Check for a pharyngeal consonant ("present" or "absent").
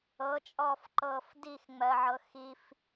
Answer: present